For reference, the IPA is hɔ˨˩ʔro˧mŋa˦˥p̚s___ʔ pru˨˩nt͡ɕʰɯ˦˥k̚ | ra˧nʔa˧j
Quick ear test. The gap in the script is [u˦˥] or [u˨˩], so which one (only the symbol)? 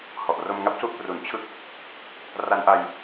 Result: u˦˥